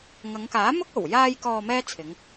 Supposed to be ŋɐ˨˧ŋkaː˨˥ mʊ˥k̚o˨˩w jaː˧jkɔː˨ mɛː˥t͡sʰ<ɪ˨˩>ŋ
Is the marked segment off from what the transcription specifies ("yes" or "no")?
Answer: yes